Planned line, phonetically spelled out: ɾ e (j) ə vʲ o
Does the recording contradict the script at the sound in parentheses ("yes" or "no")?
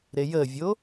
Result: no